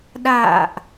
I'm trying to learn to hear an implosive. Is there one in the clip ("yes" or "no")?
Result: yes